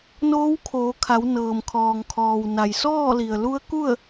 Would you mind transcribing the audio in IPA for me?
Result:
n oː˧˥ w kʰ oː˩˧ kʰ a˩˧ w n ɤː˩ m kʰ ɔː˩ ŋ kʰ ɔː˩ w n a˩ j s ɔː˥˨ l i˩ ə̯ l u˧˥ ə̯ k u˥˨ ə̯

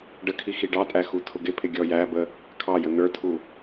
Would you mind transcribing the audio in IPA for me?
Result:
ɖ ə kʰ i x i ɖ ɑ tʼ æ x u tʰ ʊ ɡ ɪ pʰ ɪ ɡʲ ɔ j æ b ə | kʰ ɑ j ə n ə˞ tʰ u

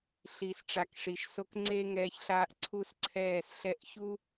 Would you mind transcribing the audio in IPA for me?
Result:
ɬ iː˨ s ʈ͡ʂ a˨ k ʂ i˨ ʃ s o˧ k ŋ͡ǀ e˦ ŋ ɛː˧ ç ɬ aː˧ ʔ ǀʰ u˦ s ǀʰ ɛː˦˨ s ɬ ɛ˦ ʔ ç u˦

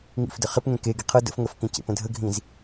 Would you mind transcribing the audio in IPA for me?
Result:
ŋ ḭ f d ə χ ɪ p ŋ ẽ k e ɡ i qʰ ɤ d ə̰ f ŋ ə f k ĩ c ḛ p ə̃ dʱ ə ɡʱ ĩ z

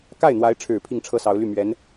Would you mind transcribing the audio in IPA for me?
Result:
k a˥˩ ɪ̯ n̪ w a˧˥ ɪ̯ ʈ͡ʂʰ ɻ̩˨˩ pʰ i˥˩ ŋ ʈ͡ʂʰ ɤ˥ s ɑ˧˥ ʊ̯ l y˥˩ m ɥ ɛ˧˥ n

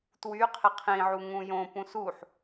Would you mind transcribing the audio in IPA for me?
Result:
t w y qʰ ɪ qʰ ĩ ʕ u ŋ ũ j õ p ũ s u ħ

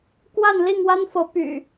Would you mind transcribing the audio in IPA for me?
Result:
k w a˥˨ n l i˥˨ ŋ w a˦ n f ɤ˨˦ p y̰˨˩

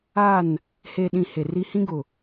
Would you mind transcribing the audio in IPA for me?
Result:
a˦˨ n | h e˨ ɗ ĩ˨ h e˨ r i˦ h ĩ˦ ɡ ʊ˨

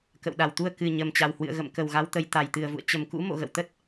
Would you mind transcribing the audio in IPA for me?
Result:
k ə̰˧˨ w ɗ a˨˩ w t̪ u˧ ə̯ k ɨ˨˩ ɲ ə˨˩ m t͡ɕ a˨˩ w h w ɨ̰˧˨ ə̯ ɣ ə̰˧˨ m k ə˨˩ w ɣ a˨˦ w t̪ ə˨˦ j t̪ a˨˩ j t̪ ɨ˨˩ ə̯ v ṵ˧˨ ə̯ t͡ɕ ə˨˩ m k ṵ˧˥ m o̰˧˨ ɣ ə̰˧˨ w t̪ ə˦˥ t̚

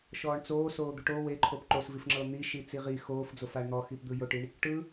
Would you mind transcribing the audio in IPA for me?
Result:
ʃ ɔː ɳ t͡s oː s oː d̪ u ʈ o w e ǃʰ o p ǃ o s v i f ŋ͡ǁ ɤ n̪ i ʃ i t͡s i ʁ i x oː f d͡z o f a ɳ n̪ ɔ x i p d̪ ɯ j o ʈ i ɳ | ʈ ɯ

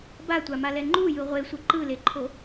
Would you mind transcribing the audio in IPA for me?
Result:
b a tʷ a m a l ɛ ŋ͡ǃ u j ɯ ʁʷ e sʷ ɯ ǃ ɯ l e ǃʰ o

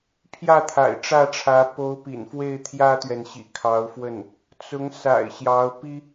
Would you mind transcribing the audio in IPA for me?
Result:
pʰ j ä˥˩ t̪ʰ a̰˨˩ ɪ̯ ʈ͡ʂ ä˥˩ ʈ͡ʂʰ ä˧˥ p o˧˥ ʊ̯ p ḭ˨˩ n f w e˥˩ ɪ̯ t̪ʰ j ä˥ t̪ ɥ ɛ˨ n ɕ ḭ˨˩ kʰ ɑ˧˥ ʊ̯ f w ə˥˩ n | t͡s ʊ˧˥ ŋ s a̰˨˩ ɪ̯ ɕ j ɑ˧˥ ʊ̯ p i˥

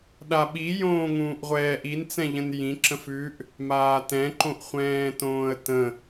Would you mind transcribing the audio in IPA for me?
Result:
ɗ a ɓ i j õː ŋ ũː ʔ ʁʷ ɛː ʔ i n t͡s ɛ̃ ʎ ə̃ n j ĩ ǁ ə̃ f ʉ ʔ | m aː t ɛ̃ ǃ õ ʔ χʷ ɛ̃ː t õː ə̯ t ə̃

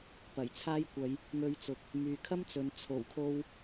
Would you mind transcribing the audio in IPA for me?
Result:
p ɐ˨˩ j t͡sʰ aː˥ j kʷ ɐ˨˧ j | ŋ ɵ˧ ɥ t͡s ʊ˨ k̚ | m yː˨ kʰ ɐ˥ m t͡s ɵ˨ n t͡sʰ o˨˩ w kʰ o˧ w

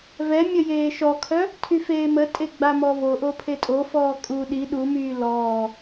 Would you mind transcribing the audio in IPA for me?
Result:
v ɛ mʲ ə j eː ʃ ɔ kʰ œ | tʰ y f eː m ə tʼ e ɡ͡b a m ɔ v o ʔ o pʰ e tʼ o f ɔː kʼ u ɗ i ɗ u m yː l ɔː

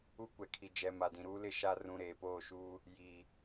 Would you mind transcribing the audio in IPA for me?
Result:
u˦ kʷ ɛ˨ kʰ i˨ d͡ʒ ɛ˨ m a˨ d ĩ˨ ɾ uː˦ l ɪ˦ ʃ a˦ r ũ˦ ɾ eː˨ p oː˦˨ ʃ uː˦ | j i˨

